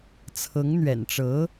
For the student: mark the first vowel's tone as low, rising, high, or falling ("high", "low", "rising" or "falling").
rising